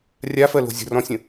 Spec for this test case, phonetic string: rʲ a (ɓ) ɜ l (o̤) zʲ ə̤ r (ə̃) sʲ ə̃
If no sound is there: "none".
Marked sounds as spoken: f, o̤, ɔ̃

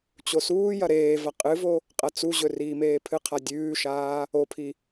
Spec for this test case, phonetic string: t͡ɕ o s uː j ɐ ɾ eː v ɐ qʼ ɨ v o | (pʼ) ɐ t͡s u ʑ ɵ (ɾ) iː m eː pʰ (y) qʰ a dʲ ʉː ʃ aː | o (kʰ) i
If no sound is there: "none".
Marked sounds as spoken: qʼ, r, ɨ, pʰ

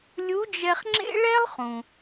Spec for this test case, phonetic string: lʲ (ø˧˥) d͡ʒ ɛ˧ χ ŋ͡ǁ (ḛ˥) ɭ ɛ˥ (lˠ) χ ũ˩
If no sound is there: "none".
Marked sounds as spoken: u˧˥, ḛ˥, lˠ

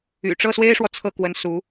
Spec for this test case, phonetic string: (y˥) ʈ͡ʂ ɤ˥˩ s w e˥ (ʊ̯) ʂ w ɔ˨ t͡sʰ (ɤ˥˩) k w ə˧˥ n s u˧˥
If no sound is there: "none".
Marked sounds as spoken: y̰˨˩, ɪ̯, ɤ˥˩

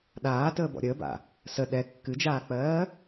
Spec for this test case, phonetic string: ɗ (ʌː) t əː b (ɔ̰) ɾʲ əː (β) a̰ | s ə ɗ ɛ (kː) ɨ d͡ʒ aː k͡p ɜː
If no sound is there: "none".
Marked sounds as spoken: aː, ɔ̰, b, kː

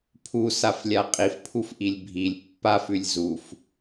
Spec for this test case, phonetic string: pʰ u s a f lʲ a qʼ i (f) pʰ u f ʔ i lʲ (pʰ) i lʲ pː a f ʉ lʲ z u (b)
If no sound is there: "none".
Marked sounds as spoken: f, bʱ, f

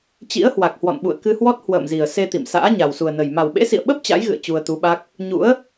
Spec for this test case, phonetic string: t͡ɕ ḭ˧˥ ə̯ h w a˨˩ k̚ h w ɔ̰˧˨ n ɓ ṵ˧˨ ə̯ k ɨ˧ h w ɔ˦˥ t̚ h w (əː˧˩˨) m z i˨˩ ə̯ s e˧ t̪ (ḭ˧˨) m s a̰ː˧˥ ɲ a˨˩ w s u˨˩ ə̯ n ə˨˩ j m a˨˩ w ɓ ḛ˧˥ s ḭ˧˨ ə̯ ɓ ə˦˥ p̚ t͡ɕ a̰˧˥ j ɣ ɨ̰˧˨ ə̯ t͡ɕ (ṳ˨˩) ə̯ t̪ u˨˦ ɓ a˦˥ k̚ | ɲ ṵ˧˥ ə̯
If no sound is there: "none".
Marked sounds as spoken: ə̰ː˧˨, ḭ˧˨, u˧

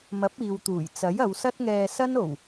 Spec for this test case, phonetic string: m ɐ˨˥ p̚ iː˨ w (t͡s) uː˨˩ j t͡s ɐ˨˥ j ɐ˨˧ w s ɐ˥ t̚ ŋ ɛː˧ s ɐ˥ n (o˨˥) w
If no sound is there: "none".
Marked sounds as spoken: t̪, o˨˩

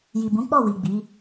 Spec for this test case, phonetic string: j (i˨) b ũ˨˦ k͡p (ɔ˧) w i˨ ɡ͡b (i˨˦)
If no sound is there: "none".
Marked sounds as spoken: i˨, ɔ˦˨, i˨˦

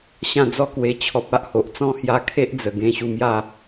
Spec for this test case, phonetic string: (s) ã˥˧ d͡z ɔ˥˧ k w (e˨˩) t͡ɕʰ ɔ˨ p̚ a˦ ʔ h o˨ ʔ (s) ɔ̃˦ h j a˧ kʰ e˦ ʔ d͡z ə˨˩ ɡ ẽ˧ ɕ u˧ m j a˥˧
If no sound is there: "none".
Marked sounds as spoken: ɕ, e˧, t͡s

